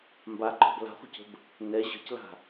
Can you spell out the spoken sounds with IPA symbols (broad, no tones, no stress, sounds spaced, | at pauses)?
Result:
m b a ǃʼ ɔ̤ b l a̤ χʷ ə̤ c ə̤ b | n ɛ ʑ ə̤ c l a̤